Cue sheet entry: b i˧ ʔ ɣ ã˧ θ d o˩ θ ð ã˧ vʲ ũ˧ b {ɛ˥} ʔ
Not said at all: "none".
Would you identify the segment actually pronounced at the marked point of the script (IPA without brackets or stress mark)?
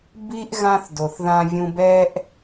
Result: ɛ˥